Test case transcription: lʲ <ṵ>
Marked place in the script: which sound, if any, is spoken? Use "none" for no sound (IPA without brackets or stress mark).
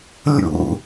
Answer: ṵ